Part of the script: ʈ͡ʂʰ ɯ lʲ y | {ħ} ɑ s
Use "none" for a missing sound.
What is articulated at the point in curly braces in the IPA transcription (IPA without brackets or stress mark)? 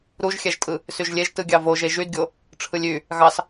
ɣ